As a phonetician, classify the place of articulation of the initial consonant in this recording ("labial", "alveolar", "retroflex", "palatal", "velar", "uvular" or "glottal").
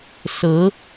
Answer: alveolar